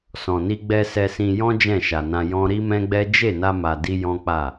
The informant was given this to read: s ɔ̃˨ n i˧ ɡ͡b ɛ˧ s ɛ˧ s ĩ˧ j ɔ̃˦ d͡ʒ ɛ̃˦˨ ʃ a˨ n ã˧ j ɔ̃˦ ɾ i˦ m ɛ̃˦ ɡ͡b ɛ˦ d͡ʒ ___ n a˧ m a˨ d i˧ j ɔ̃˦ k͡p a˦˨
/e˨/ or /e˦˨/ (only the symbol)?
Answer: e˦˨